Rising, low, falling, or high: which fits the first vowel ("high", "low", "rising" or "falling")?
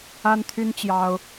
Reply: high